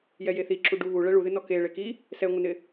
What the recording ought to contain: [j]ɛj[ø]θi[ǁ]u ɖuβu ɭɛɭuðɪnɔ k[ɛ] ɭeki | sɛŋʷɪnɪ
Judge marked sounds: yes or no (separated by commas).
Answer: yes, no, yes, no